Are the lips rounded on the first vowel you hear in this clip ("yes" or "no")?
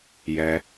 no